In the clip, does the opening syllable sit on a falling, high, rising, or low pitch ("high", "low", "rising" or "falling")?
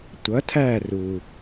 rising